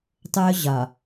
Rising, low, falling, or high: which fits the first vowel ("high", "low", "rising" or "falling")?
high